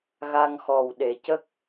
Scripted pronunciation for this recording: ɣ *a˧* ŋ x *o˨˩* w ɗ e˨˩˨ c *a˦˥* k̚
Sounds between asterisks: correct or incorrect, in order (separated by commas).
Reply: correct, incorrect, incorrect